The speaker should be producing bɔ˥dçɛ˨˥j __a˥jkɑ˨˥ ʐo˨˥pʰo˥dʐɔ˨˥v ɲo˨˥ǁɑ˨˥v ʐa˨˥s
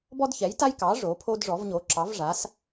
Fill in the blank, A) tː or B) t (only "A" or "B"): B